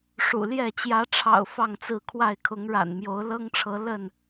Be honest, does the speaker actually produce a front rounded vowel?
no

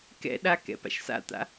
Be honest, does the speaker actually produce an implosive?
yes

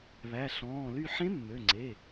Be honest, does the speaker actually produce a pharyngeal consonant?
yes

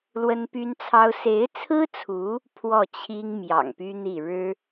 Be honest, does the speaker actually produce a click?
no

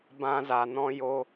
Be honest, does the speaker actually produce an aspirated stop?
no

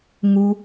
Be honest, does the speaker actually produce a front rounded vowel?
no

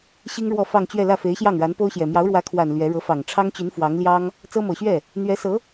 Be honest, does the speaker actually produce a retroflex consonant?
yes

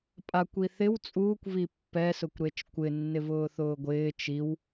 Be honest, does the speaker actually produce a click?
no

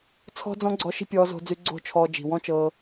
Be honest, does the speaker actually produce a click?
yes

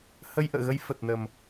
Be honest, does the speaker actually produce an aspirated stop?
no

